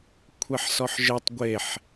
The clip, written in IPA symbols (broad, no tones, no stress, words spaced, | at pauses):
kʷʰɛħsɔħʒetˤ ɡʷeħ